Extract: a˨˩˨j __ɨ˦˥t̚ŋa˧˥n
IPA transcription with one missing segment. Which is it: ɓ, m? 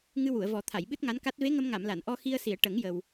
ɓ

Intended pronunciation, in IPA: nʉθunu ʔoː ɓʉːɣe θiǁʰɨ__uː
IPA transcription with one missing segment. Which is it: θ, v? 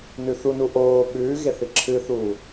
θ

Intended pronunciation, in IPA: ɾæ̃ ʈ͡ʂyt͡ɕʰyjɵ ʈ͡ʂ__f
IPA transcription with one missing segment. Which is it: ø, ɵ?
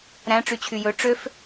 ø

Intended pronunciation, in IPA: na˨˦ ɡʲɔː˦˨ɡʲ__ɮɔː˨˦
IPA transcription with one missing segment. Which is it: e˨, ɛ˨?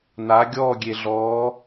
e˨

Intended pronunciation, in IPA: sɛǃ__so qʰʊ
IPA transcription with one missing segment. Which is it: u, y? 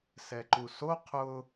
u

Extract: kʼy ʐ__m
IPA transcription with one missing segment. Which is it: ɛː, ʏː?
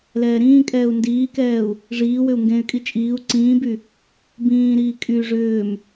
ʏː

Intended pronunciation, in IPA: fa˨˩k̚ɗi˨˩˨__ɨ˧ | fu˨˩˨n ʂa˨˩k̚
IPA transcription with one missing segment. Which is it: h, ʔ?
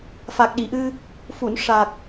ʔ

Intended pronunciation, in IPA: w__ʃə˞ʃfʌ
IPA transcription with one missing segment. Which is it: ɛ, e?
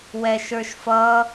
ɛ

